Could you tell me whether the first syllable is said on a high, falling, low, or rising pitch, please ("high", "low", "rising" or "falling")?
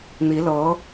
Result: rising